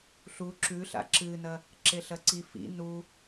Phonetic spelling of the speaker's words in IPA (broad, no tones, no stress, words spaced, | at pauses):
ɬu ǁʉɬa̰ ǁɨnɐ | ǁeɬɐǀi fḭ nu